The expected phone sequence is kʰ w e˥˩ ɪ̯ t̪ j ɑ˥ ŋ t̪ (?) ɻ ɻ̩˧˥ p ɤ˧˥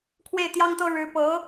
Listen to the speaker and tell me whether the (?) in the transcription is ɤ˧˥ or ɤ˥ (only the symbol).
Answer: ɤ˥